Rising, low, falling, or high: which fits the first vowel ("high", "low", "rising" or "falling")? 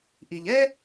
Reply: low